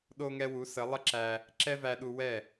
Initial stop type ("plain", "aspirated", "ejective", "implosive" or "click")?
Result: implosive